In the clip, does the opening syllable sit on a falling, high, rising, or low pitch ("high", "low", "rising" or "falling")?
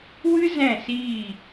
high